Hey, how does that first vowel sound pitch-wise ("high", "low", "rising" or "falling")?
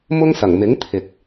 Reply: high